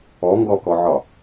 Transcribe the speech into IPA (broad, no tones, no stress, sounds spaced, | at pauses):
ɔ ŋ ɡ ɔ k ɔ ʕ ɒ